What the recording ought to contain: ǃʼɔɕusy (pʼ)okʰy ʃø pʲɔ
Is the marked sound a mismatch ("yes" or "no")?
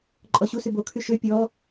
yes